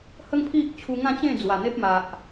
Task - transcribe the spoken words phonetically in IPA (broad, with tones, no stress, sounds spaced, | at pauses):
h ə˦ ŋ pʰ i˦ ʔ t͡ɕʰ u˧ ŋ ã˥˧ t͡ɕ ẽ˥˧ d͡z w a˨˩ n̪ e˦ p̚ m a˨ ʔ